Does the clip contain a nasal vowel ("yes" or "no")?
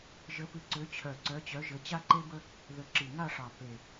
no